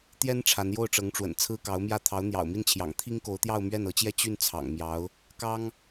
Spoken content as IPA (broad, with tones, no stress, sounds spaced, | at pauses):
t̪ j ɛ˥ n ʈ͡ʂʰ a˧˥ n j o˥˩ ʊ̯ ʈ͡ʂ ɤ˧˥ ŋ ʈ͡ʂ w ə̰˨˩ n t͡sʰ ɹ̩˥ k ɑ˧˥ ʊ̯ m j ä˥˩ t̪ʰ ɑ˧˥ ʊ̯ n̪ j ɑ̰˨˩ ʊ̯ m i˥˩ n t͡ɕʰ j ɑ̰˨˩ ŋ t̪ʰ i˥ ŋ k o˧˥ ʊ̯ t̪ j ɑ˥˧ ʊ̯ m ɥ ɛ˥˩ n ɤ˧˥ t͡ɕ j ɛ˥˧ t͡ɕ y˥˩ n t͡sʰ ɑ̰˨˩ ŋ m j ɑ˧˥ ʊ̯ | k ɑ˥ ŋ